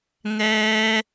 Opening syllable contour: high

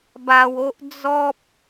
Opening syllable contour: low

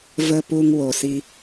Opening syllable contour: low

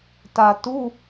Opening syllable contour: low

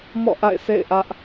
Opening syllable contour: falling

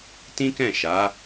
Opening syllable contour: high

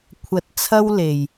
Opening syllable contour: low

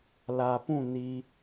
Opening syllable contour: low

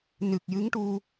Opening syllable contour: low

